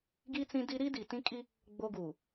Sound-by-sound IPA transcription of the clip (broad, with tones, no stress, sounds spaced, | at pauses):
ɡ i˦ t͡s ĩ˦ d i˦ ɾ i˦ d i˨ t ĩ˦ kʼ i˦ | ɡ͡b o˦ ɡ uː˨